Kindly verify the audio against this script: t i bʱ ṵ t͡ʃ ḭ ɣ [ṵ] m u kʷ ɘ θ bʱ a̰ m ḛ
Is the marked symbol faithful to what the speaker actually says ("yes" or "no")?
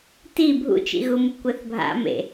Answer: no